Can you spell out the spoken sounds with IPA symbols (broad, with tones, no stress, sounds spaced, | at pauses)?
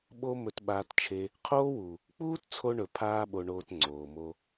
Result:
ɓ o˦ m ɵ˧ t ɓ aː˧ t t͡ʃʰ e˧ | qʰ oː˦ w u˨ | k͡p uː˦ t t͡sʰ o˧ ɳ ɵ˨ pʰ aː˦ ɓ o˧ ɳ oː˧ t ŋ͡ǀ oː˨ m o˧